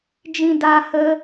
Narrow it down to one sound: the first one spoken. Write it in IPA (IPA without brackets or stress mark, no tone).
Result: d͡ʒ